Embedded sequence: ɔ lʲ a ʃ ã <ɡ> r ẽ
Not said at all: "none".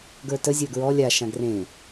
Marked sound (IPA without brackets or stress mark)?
ɡ